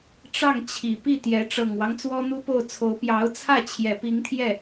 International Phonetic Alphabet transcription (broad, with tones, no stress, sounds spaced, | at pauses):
ʈ͡ʂ ɑ˥˩ ŋ t͡ɕʰ i˨˩ p i˥˩ t̪ j ɛ˧˥ ʈ͡ʂ ɤ˨˩ ŋ w ɑ˦ ŋ t͡s w ɔ˥ n̪ u˥ p o˥˩ ʊ̯ t͡sʰ o˧˥ ʊ̯ p j ɑ˧˥ ʊ̯ t͡sʰ ä˥˩ t͡ɕʰ j ɛ˨˩ p i˧˥ ŋ t̪ʰ j ɛ˥˩